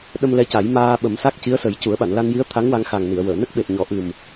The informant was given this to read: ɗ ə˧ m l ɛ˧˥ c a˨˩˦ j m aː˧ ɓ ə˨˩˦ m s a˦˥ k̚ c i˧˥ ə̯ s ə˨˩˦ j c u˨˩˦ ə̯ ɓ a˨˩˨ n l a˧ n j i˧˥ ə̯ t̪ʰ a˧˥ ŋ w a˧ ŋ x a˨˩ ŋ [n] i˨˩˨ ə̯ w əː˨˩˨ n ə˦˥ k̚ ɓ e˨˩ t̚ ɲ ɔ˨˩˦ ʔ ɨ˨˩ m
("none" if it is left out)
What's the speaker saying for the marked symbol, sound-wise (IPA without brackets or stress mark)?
n